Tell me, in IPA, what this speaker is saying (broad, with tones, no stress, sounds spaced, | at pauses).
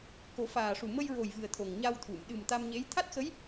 k o˨˩˦ f aː˨˩ ʂ u˨˩ m ə˧ j ɹ o˨˩ j v ɨ˨˩ ə̯ t̪ʰ o˨˩ ŋ ɲ a˧ w t̪ʰ u˨˩˨ m ɗ ɨ˨˩ m t̪ a˧ m ɲ e˧˥ j t̪ʰ a˦˥ t̚ x ə˧˥ j